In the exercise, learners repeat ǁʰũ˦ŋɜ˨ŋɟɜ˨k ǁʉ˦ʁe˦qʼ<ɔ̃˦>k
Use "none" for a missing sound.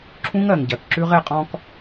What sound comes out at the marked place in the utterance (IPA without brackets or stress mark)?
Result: ɔ̃˦